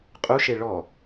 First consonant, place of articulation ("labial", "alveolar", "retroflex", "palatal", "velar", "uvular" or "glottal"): uvular